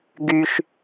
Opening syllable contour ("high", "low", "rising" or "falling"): low